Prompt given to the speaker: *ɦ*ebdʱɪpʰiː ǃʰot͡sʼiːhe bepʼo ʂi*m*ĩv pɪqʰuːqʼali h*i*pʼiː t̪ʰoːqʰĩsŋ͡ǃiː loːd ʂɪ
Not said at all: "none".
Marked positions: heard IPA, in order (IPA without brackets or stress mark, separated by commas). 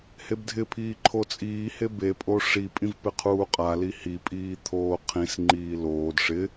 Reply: h, pʼ, i